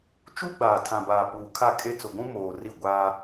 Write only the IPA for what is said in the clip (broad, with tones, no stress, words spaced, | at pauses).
t͡ʃu˦ ɡ͡baː˨tʰã˨baː˨ puː˨kʰa˦˨kʼe˦ t͡sʊ˨ɡʷũ˦moː˨ ri˦˨ɡʷaː˦